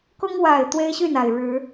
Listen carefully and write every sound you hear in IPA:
k ʊ˦ ŋ w a˨˩ ɪ̯ t̪ w e˦ ɪ̯ ɕ y˥˨ n a˨˩ ɪ̯ ɻ ɻ̩˨˦

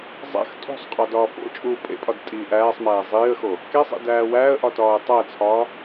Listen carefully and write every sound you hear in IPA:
zˤ æ̰ x tʼ o̤ sˤ qʼ ɒ d ɒː f o̰ t͡ʃʼ uː pʼ ḛ pʼ ɒ d tʼ iː ʔ æː sˤ m æː zˤ iː ə̯ x o | k e sˤ ḛ d æː w æː ə̯ ʔ ɒ t ɒː ə̯ tˤ æ t͡sʰ ɒː

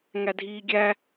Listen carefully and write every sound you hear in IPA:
ŋ æ dʱ iː ɡʲ æ

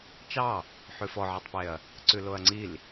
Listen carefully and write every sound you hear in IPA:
t͡ʃ ɑ | ħ ʉ f ɔ ʕ e tˤ p e ɐ̯ | ǀ ʉ l o ɐ̯ ŋ͡ǀ i l

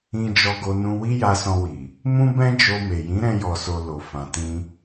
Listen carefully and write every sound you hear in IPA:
ĩ˧ d͡ʒ ɔ˧ ɡ o˧ n ũ˧ w i˦ j a˧ s ɔ̃˧ w i˨ | m ũ˦ b ɛ̃˦ d͡ʒ o˧ m e˨ j ĩ˨˦ ɾ ɛ̃˧ j ɔ˨ s o˨ l o˨ f ã˨ t ĩ˧

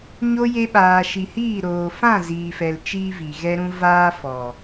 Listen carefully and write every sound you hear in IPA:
ɲ o˧ j e˧ ɓ aː˨ ʃ i˨ h iː˦˨ ɾ oː˨ f ã˦˨ z iː˨ f ɛ˨ l t͡ʃ iː˦ v i˨ ɣ ɛ˧ ɾ ũ˧ v aː˦ f ɔ˨

